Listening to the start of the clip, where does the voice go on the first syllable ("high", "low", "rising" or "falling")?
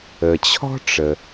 low